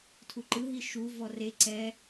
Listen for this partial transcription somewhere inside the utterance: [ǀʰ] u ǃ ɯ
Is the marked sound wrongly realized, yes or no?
yes